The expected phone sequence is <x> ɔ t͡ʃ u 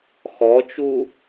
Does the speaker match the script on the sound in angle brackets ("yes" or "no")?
yes